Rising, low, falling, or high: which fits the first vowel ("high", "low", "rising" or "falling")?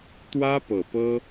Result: high